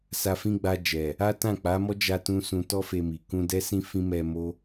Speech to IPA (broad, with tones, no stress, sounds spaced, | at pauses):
s a˧ f ĩ˦ ɡ͡b a˧ d͡ʒ ɛ˨ | a˦ t ã˦˨ k͡p a˨˦ m ɔ˦ d͡ʒ a˧ t ũ˧ s ũ˧ t ɔ˦ f e˧ m i˨ k ũ˧ d ɛ˦ s ĩ˦ f ĩ˦ m ɛ˧ m o˦